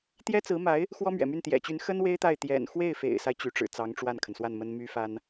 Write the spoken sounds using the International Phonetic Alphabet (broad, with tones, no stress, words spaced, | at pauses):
t̪jɛ˥t͡sɹ̩˧˥ma˧˥ɪ̯ | xwɔ˥mɥɛ̰˨˩my˥˩n t̪jɛ̰˨˩t͡ɕy˧˥n xə˥n we˥ɪ̯t̪a˥˩ɪ̯ t̪jɛ̰˨˩nxwe˥˩ɪ̯fḛ˨˩ɪ̯sa˦ɪ̯ t͡ɕy˧˥ʈ͡ʂɻ̩˨˩ t͡sɑ˧˥ŋʈ͡ʂwa˥˩nkʰə˩nswa˥˩n mə˥nmy˥fa˥n